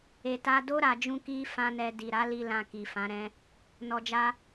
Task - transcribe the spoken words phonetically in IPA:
e˨ t a˧ d o˦ ɾ a˧ d͡ʒ ũ˦ k i˦ f ã˦ n ɛ˧ d i˨ ɾ a˨˦ l i˧ l ã˧ k i˨ f ã˨˦ ɾ ɛ̃˦ | n ɔ˨ d͡ʒ a˧

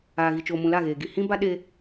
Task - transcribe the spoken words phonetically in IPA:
aː˨ ɣ i˨ t͡ʃ oː˨ m ũ˨ l a˦˨ ɣ eː˨ ɡ i˨ h ĩ˦ b a˦ ɗ e˦

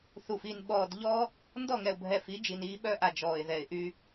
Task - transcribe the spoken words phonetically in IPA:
θ u˨ f i˨ n ɓ ɔː˨ d ʎ ɔ˦ | n d ɔ˦˨ ŋ ɛ˨ ʊ̯ bʱ ɛ˨ f i˨˦ d͡ʒ i˨ n iː˦ ɓ œ˦ ʔ a˨ d͡ʒ ɔː˨ ɪ̯ ð ɛ˨ ɪ̯ ʔ y˦

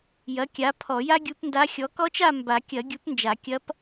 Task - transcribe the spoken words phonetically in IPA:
j ɐ˩˥ kʲ a˩˥ pʰ ɔ˨˩˦ j a˥ ɡʲ u˧˥ p n d a˧˥ xʲ ɔ˩˥ k ɔ˧˥ t͡ʃ a˦˨ m b a˨˩˦ kʲ ɐ˨˩˦ ɡʲ u˩˥ p n d͡ʒ a˨˩˦ kʲ ɐ˧˥ p

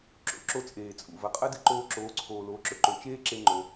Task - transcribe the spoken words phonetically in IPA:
ǁ o̰˧ ǁ o˧ t͡sʼ eː˩ t͡sʼ ṵ˩ v ɐ˩ qʼ ɐ˥ d ɨ˧ ǃ oː˧ ǁ oː˩˧ ǀʰ oː˩ l oː˩˧ ǁ ɵ˩ ǃ o˩ t͡ʃ eː˥ ǁ e˧ ŋ͡ǃ o˩

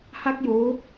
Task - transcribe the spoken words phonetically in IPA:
h a˥˩ k̚ j oː˦˥

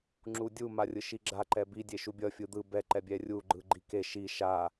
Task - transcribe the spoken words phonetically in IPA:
ŋ͡ǁ u dʲ u m a rʲ ɯ ʃ i ɡ͡ǁ a ǃ ɛ b i dʲ e ʃ u bʲ ʌ fʲ ɯ d̪ ɯ b ɛ ǃ ɛ bʲ ɛ rʲ u ɡ͡ǃ ɯ ɡ͡ǃ i k e ʃ i ʃ a

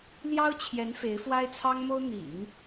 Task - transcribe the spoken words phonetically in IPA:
l j ɑ˥ ʊ̯ t͡ɕʰ j ɛ˧˥ n f e˧˥ ɪ̯ f w a˥ ɪ̯ t͡sʰ ɑ˥ ŋ m o˥ ʊ̯ n̪ ḭ˨˩˦ ŋ

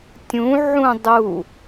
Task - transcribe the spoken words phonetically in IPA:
tʲ ũ ʕ ũ dˤ u

